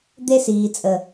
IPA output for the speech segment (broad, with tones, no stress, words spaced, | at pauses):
d̪e˦siː˨t͡sʼə˨